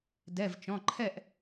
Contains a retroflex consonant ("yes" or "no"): no